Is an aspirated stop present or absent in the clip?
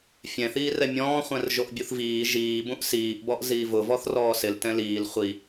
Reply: absent